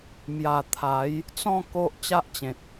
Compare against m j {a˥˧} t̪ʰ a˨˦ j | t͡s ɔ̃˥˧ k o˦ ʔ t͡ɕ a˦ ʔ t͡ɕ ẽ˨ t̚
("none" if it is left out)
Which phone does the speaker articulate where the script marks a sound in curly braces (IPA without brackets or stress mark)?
a˨˩